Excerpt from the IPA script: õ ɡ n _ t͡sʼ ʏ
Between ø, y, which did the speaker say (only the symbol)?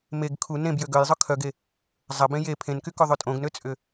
ø